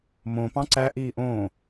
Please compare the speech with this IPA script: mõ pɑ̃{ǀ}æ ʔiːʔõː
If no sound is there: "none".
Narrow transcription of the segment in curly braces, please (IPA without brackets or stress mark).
ǀ